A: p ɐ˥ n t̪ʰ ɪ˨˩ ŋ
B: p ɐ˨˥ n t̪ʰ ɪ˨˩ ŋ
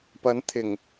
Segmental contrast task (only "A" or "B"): B